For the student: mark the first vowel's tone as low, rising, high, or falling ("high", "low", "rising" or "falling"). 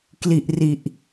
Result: low